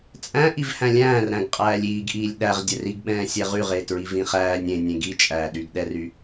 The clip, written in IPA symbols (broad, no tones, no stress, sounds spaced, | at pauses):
t͡sʼ æ̃ ʔ i v h æ̃ lʲ æ̃ː r ɾ æ̃ ɡ qʼ æː lʲ iː ɡ ʔ iː lʲ ɗ æ ʁ dʲ ɛ r i ɡ ɓ ɛ̃ː sʲ ɛ ʁ y ʁ e t ɹ i v ĩ χ æː nʲ ẽ nʲ ẽ ɡ i t͡ʃʼ æː ɗ y ɡ ɗ ɛ r y